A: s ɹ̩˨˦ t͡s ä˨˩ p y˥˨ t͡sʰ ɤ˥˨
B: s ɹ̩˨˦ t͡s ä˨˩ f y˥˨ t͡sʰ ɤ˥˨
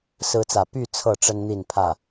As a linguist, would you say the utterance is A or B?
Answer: A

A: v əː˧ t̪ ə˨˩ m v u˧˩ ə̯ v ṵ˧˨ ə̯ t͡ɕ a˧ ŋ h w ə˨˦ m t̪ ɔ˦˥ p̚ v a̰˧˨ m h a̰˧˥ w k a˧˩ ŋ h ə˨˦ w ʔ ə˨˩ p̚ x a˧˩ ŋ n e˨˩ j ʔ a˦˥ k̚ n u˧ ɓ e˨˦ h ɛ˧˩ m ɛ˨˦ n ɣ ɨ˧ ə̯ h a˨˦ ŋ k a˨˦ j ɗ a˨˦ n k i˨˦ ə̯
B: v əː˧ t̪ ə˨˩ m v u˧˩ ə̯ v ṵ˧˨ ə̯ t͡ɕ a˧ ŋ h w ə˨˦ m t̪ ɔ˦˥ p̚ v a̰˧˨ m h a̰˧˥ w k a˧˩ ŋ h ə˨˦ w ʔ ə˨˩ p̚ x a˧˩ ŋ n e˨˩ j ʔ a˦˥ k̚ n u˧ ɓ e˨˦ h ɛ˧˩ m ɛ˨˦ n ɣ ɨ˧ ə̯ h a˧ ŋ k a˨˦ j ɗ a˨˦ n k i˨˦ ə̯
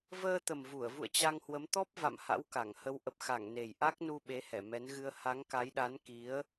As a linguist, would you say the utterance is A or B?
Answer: A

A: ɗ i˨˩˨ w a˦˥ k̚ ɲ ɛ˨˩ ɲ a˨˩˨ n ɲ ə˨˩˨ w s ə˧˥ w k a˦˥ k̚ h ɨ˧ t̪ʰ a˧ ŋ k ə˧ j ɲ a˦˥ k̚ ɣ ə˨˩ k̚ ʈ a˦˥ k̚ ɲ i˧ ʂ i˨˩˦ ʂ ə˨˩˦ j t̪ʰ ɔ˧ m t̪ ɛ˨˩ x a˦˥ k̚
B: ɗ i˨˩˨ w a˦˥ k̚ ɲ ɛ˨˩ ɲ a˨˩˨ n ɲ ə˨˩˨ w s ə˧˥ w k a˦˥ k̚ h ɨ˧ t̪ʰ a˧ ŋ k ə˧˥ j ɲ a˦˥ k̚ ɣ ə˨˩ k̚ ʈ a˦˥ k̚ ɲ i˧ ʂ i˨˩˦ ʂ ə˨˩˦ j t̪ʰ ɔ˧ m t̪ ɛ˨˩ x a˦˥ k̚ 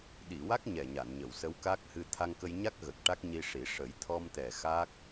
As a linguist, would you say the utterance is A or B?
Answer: A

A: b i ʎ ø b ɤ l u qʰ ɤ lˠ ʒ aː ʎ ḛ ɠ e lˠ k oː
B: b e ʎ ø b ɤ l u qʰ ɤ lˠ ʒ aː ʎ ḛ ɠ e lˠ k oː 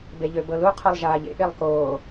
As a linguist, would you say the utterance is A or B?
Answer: B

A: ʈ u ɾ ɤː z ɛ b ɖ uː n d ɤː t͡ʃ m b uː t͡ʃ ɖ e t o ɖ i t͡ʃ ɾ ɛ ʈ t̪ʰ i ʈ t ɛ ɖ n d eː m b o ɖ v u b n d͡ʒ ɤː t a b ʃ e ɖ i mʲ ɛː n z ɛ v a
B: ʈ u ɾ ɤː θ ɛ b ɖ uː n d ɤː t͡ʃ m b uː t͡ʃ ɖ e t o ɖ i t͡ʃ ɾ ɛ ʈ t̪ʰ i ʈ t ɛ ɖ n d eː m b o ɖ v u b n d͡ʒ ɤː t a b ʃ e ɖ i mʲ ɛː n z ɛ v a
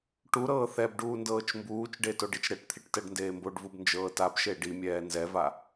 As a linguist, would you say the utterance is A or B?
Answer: B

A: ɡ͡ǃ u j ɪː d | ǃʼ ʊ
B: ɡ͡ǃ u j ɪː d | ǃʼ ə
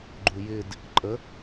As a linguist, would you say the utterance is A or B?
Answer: B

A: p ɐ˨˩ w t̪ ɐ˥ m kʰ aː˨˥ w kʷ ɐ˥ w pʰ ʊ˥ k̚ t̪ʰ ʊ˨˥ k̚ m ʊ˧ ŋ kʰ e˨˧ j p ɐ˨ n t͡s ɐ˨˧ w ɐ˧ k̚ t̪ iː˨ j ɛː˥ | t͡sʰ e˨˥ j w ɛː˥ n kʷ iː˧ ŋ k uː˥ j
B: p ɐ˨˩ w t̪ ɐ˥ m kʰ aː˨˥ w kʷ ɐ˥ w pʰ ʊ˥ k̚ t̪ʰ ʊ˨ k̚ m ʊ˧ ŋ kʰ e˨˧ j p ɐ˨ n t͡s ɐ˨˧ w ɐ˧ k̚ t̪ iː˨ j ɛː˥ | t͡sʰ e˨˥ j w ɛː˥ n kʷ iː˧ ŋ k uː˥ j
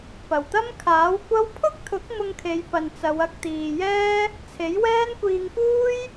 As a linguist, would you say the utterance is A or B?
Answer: A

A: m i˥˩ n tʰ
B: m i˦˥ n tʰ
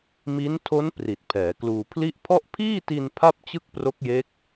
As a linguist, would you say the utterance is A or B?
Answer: B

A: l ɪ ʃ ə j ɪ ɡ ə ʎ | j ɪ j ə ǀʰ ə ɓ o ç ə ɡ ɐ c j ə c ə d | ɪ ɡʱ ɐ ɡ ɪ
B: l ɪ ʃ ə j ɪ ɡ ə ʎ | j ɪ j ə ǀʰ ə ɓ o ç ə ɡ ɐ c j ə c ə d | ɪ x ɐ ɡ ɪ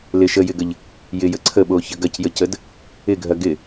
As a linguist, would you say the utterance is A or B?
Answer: A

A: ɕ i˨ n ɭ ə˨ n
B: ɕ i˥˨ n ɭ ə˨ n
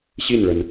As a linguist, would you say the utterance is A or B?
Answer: B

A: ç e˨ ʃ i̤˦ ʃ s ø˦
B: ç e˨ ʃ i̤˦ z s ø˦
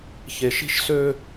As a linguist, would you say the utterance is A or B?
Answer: A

